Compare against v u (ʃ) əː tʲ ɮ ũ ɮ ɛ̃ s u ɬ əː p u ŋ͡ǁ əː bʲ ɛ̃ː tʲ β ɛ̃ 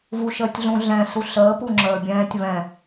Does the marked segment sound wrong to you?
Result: no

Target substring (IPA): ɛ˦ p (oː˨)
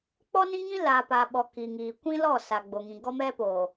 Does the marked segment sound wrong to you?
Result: no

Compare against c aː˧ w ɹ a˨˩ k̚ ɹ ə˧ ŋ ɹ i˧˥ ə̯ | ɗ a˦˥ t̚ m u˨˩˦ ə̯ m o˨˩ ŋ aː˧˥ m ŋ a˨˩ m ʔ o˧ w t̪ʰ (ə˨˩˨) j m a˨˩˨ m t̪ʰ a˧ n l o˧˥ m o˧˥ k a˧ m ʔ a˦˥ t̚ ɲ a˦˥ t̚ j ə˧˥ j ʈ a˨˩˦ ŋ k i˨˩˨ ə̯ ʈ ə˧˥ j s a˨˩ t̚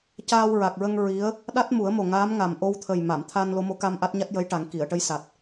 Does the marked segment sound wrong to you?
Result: yes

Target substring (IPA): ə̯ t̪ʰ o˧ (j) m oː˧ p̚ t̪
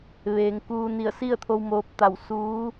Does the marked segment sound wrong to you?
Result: yes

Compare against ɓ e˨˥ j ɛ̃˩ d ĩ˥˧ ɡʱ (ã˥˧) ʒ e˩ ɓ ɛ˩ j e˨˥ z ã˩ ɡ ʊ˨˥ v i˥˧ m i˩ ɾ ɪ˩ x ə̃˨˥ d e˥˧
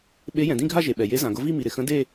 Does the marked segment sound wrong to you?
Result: yes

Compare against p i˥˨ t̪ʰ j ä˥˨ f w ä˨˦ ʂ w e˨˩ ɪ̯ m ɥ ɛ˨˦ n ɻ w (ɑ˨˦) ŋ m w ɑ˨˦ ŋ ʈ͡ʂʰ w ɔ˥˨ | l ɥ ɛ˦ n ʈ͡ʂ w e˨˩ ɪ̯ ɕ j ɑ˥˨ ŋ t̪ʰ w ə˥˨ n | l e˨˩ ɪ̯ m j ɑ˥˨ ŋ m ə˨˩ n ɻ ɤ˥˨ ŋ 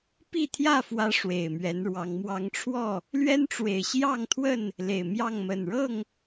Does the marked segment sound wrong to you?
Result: no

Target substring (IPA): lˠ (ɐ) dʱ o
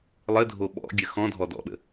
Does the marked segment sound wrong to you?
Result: yes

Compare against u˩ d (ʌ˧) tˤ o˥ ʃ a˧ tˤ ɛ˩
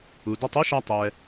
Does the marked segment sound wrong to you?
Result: no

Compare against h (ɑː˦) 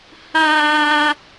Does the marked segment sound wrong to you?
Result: yes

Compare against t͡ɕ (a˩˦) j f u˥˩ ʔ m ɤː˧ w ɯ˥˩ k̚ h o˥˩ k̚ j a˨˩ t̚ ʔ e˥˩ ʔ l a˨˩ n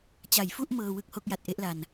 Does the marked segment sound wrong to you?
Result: no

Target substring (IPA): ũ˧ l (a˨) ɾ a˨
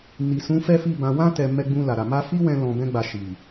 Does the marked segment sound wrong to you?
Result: no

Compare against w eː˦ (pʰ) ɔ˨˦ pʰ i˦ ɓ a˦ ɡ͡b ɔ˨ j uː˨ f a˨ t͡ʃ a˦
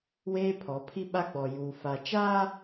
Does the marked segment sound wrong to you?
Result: no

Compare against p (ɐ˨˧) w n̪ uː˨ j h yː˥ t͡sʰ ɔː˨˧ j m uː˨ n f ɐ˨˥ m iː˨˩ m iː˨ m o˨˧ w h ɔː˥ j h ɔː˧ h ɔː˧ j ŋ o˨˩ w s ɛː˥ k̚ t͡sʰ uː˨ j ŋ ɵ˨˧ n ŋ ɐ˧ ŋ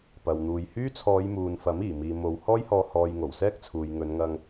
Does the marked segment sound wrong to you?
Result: yes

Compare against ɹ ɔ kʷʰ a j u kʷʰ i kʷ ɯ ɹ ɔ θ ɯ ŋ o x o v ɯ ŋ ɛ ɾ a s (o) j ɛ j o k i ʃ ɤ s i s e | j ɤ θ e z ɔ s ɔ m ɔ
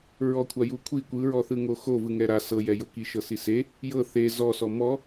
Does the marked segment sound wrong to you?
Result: yes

